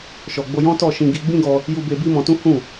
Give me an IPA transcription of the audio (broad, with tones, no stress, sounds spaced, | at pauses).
ʃ ɔ˧ ɡ͡b o˦ j ɔ̃˦ t ɔ˦˨ ʃ ĩ˧ ɡ i˧ ɡ͡b ĩ˦ ɡ ɔ˧ | j u˦ b e˦ b i˦ m ɔ̃˧ t ũ˦ h ũ˦˨